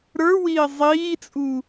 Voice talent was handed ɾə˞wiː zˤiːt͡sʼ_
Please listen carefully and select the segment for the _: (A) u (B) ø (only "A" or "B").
A